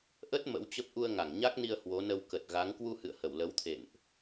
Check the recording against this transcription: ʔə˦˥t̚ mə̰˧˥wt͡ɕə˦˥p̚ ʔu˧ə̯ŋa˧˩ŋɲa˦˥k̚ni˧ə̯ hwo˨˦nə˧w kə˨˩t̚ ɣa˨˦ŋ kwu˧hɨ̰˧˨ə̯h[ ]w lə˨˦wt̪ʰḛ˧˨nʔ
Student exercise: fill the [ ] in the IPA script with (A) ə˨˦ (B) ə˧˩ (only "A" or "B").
B